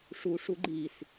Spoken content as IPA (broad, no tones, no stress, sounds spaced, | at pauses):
ʂ u ʂ u ɡ͡ǃ i s